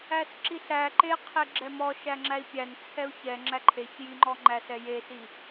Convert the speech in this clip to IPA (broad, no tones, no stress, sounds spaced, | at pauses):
æ s ǁ i ɬ æ ǃ e qʰ e ɡ͡ǁ ɛ m ɔ ʃ æ ŋ͡ǁ æ i̯ pʲ æ n t͡sʰ ɛ u̯ ç ɛ ŋ͡ǁ æ ǃʰ e ç j i ŋ͡ǃ ɔ ŋ͡ǃ æ s ɛ j e s i